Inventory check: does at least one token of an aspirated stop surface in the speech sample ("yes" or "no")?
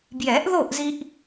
no